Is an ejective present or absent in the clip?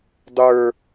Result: absent